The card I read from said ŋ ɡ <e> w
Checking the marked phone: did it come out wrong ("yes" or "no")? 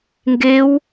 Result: no